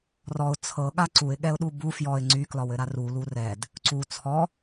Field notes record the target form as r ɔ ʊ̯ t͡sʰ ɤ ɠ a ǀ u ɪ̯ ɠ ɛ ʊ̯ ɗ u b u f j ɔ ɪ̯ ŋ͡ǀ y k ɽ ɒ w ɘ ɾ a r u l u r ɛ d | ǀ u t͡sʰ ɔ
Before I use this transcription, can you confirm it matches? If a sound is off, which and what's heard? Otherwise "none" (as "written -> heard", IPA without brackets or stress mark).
ɽ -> l